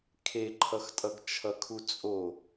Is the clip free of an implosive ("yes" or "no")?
yes